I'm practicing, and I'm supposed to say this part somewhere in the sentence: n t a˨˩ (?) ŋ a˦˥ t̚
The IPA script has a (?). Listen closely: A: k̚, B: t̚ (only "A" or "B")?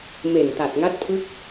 B